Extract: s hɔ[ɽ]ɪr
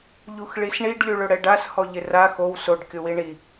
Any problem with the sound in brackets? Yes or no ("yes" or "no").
yes